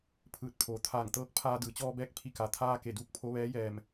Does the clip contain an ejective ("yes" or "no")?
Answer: no